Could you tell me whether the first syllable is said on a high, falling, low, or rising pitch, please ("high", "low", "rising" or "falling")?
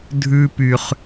high